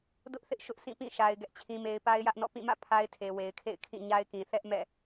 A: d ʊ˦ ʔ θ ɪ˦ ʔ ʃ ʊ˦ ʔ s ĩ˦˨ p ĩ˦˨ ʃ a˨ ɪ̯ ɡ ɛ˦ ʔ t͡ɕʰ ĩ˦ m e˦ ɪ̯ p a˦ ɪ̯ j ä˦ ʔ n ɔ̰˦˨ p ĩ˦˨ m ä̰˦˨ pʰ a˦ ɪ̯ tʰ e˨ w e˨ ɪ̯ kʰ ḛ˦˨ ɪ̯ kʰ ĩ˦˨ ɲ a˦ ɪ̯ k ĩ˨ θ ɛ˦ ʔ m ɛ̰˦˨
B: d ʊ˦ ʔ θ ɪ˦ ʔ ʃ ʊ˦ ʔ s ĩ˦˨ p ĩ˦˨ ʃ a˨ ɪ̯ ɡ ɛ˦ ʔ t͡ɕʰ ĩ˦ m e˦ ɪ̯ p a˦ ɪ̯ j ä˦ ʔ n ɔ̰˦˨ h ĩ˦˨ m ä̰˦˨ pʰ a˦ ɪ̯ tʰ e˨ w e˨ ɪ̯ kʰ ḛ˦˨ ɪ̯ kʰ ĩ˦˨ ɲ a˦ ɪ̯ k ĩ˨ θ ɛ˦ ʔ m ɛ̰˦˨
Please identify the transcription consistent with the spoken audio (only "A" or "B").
A